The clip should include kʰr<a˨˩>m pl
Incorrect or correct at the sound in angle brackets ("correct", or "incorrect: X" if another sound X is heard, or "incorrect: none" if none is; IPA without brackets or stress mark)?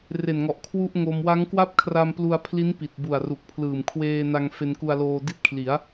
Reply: incorrect: a˧